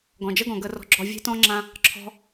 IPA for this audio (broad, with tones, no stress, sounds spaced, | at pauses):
ɡ ɔ̃˨ d͡ʒ ə˦ ɡ ɔ̃˨ ɡ ə˧ r ɔ̤˧ ɡ͡ǁ ɔ˧ vʲ e̤˧ t ɔ̃˧ ŋ͡ǁ ã˧ | ǁʰ ɔ̤˧